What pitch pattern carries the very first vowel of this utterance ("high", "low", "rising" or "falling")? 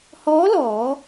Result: rising